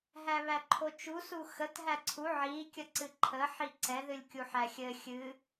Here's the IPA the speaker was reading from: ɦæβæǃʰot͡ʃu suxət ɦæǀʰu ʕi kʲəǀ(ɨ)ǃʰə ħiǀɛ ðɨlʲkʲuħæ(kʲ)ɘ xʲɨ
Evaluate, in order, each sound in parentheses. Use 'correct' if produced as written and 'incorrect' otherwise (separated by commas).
correct, incorrect